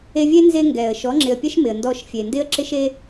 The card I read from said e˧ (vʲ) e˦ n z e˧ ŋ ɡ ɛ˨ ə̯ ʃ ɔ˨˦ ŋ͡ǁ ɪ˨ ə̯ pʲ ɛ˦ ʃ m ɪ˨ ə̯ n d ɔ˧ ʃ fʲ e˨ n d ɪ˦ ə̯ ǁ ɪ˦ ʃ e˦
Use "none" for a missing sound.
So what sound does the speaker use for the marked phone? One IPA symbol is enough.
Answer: vʲ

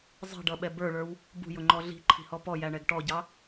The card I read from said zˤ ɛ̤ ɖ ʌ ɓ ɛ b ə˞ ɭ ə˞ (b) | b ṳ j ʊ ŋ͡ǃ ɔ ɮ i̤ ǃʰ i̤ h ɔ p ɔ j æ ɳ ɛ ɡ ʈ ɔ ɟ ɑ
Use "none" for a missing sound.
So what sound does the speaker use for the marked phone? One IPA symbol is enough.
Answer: w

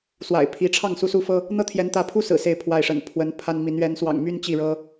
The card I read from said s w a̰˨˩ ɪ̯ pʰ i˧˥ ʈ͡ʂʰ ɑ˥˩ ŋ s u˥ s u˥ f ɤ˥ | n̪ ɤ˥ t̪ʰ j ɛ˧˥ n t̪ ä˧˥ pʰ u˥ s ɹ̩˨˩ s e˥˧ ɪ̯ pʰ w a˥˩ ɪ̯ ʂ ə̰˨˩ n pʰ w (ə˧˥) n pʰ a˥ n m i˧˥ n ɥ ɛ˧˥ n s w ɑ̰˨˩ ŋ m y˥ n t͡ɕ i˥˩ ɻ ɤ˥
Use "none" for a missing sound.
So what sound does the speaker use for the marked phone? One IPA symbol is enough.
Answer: ə˧˥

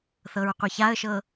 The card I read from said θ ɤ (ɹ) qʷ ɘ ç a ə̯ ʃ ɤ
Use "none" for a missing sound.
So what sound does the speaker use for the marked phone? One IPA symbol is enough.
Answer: ɹ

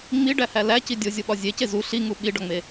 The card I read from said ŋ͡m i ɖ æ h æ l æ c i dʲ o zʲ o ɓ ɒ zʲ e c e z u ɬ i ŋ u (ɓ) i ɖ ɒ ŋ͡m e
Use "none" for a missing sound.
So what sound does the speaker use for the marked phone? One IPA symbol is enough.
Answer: ɓ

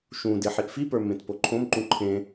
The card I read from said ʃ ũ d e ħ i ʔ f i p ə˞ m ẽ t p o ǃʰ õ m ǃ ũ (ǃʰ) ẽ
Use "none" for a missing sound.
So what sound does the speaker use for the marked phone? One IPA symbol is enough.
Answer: ǃʰ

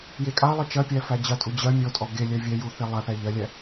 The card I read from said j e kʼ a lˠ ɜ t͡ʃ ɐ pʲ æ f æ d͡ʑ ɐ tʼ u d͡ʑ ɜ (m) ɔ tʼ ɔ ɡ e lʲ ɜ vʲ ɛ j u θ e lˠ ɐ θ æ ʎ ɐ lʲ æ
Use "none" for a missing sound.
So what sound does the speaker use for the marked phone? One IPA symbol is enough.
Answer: mʲ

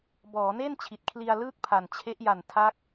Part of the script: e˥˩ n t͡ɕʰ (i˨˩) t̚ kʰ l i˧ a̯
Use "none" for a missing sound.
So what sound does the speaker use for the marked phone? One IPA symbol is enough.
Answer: i˨˩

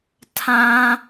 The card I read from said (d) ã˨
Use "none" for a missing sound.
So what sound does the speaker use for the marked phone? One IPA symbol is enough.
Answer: tʰ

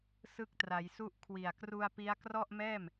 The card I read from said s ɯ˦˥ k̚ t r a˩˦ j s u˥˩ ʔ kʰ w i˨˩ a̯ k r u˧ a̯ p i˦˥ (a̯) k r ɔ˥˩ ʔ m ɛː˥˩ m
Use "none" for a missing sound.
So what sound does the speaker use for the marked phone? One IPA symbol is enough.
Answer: a̯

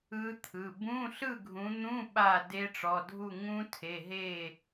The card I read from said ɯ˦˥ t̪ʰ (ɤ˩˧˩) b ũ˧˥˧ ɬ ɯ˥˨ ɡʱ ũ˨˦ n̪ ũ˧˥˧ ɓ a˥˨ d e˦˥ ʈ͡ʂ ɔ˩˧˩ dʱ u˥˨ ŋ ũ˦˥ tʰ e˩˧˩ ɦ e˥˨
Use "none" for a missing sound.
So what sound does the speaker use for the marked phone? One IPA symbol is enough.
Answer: ɯ˩˧˩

